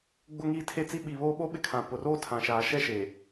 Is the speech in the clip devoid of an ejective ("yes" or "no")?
yes